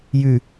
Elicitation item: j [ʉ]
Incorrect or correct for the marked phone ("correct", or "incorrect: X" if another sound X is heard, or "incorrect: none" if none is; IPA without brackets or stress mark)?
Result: correct